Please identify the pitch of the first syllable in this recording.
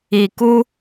low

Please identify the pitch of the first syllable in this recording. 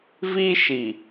high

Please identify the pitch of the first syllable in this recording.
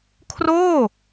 falling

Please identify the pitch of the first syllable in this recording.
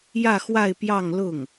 falling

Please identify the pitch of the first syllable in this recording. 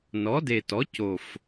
rising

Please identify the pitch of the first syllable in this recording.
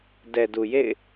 low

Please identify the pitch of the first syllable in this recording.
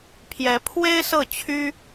rising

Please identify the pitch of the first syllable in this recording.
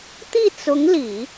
falling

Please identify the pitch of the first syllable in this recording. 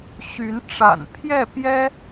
rising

